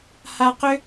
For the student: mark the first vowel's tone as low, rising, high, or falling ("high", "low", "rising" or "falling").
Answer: high